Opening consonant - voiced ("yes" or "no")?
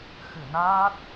no